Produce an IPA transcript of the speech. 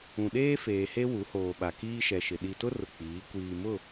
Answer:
ũ˨ ɗ eː˦ f eː˨ h e˦ w u˨˦ h oː˨ ɓ a˨ k iː˦ ʃ ɛ˨ ʃ ɪ˨ ɗ i˨ t ʊ˦ r ʊ˨ k͡p iː˨˦ kʷ iː˨ m ʊ˦˨

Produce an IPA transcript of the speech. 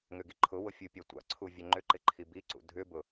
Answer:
ŋ ʏ ɡ i ǃʰ ʊ w ʊ fʲ u pʲ a tʷ a̰ ǀʰ u vʲ ø ŋ͡ǃ ʏ ǃ ɪ ǃʰ i b i ǀ ṵ dʱ ʏ b ʊ

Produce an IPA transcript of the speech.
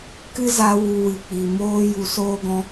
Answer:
k ɨ˦ z a˧ w u˧ w ɨ˨ k͡p i˨ m oː˦ j u˧ s oː˦ ɡ ɔ̃˦

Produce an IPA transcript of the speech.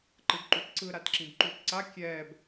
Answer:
ǃ ɯ b ǃ u t ǀ ɯ ɾ a t ǁ ĩ b ǃ u t ǀ a kʲ ɛː b

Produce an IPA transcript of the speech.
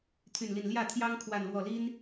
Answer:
t̪ʰ y˥˧ n l i˥˧ n l j ä˥˩ t̪ʰ j ɑ˥ ŋ kʰ w a˥˧ n l w ɔ˥˩ l i˥ n

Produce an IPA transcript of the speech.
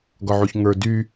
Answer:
ɡ ɒ ʕ u ç ŋ ə˞ d y

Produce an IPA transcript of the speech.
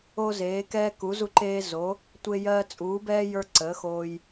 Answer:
o˦ z eː˨˦ k ɛː˦ k u˨˦ z u˦ ǃ eː˦ z o˨˦ | tʷ e˦ j ɜː˦ t͡sʼ uː˨˦ b ɛː˦ j ə˞˦ ǀ ə˨˦ x oː˦ j

